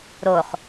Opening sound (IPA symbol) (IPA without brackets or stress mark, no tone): ɾ